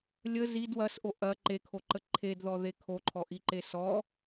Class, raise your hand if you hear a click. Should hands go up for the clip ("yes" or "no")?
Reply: yes